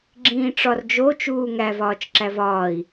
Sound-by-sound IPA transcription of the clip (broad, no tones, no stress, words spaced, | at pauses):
ɡ͡ǁĩːʈ͡ʂɒrd͡ʒo t͡ʃuːŋæv ɒːt͡ʃǁævɒːi̯